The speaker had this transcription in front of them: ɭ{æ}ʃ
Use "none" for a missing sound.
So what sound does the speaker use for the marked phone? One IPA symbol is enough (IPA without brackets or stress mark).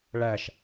æ